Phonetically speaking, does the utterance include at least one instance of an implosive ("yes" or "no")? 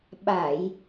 yes